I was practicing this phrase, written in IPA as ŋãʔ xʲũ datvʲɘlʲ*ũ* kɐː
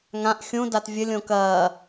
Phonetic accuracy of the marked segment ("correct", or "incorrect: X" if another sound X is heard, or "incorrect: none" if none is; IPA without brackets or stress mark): incorrect: õ